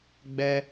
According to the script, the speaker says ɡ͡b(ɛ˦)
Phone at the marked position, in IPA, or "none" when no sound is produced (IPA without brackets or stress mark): ɛ˦